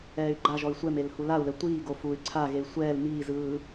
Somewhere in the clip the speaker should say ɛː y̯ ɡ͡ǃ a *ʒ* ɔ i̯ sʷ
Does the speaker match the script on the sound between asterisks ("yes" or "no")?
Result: yes